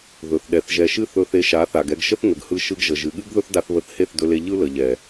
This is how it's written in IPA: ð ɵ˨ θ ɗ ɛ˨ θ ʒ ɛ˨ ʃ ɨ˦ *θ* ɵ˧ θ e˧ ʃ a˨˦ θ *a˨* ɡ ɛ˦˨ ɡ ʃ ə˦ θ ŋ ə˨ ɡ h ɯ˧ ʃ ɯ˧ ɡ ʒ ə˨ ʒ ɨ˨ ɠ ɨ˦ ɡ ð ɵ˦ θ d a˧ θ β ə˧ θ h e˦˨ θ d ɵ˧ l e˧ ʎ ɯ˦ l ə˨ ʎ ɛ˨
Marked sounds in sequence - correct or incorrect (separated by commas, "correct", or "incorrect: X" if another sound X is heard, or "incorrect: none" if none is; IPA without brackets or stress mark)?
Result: correct, correct